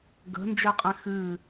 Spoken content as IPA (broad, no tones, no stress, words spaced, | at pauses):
ɡə̤nd͡ʒɛqʼɛ̃ xɨ